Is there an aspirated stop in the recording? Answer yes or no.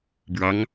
no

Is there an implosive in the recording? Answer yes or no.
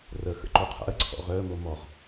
no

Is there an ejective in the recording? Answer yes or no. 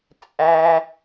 yes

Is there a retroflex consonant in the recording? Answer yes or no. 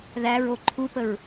no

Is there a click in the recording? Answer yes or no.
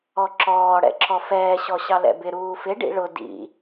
yes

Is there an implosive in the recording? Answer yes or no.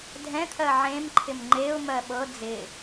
yes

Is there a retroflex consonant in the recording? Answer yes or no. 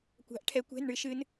yes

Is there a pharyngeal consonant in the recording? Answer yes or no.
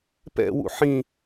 yes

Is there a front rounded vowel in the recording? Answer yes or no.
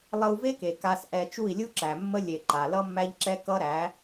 no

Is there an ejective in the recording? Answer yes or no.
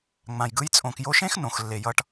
yes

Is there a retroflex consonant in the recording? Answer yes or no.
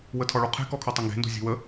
yes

